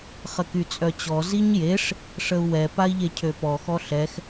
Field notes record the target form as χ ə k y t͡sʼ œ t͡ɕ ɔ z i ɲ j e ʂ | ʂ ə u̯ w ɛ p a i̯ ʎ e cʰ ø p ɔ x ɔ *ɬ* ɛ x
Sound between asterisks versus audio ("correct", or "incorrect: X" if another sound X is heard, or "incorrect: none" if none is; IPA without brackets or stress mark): correct